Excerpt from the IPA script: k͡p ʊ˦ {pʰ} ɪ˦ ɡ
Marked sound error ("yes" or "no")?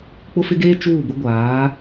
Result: yes